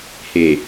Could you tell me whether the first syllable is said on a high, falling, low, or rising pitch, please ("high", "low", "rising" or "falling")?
low